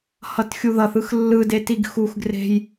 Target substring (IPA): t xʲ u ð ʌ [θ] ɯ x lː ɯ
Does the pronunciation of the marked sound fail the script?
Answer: no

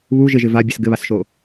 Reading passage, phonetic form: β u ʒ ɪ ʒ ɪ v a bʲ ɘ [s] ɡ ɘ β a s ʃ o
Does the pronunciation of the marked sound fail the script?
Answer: no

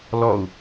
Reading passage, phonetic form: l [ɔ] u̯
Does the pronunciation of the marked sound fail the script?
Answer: no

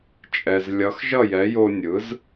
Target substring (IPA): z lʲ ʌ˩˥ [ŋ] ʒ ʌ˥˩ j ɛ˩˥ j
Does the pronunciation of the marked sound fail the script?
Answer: yes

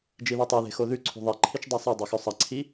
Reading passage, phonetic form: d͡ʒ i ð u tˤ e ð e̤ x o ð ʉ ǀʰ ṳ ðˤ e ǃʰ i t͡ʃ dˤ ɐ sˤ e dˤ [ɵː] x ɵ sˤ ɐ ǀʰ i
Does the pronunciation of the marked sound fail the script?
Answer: yes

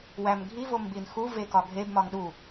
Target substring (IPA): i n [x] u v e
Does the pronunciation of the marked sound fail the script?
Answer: no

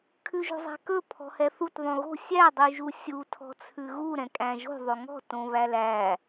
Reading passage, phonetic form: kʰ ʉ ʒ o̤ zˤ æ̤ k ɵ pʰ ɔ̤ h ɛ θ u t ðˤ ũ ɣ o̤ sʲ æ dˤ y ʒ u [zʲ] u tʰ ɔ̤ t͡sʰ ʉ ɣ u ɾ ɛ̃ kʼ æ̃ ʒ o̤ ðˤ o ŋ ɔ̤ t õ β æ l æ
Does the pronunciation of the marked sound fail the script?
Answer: yes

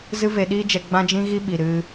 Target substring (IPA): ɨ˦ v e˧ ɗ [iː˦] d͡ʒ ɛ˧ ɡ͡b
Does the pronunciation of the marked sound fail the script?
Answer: no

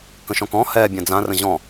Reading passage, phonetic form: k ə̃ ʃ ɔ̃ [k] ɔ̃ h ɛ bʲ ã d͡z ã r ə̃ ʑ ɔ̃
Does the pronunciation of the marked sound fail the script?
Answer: no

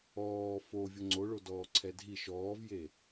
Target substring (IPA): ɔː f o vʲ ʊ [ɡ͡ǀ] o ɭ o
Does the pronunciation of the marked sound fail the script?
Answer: yes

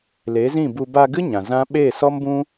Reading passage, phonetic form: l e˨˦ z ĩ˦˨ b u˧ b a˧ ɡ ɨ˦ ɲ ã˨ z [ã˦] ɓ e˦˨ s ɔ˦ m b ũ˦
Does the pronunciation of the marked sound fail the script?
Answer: no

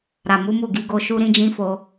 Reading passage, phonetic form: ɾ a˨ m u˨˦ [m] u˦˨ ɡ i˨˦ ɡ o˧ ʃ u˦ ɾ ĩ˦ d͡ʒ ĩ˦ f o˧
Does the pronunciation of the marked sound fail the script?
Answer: no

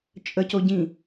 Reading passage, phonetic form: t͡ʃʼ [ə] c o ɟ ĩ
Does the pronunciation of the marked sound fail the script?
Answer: no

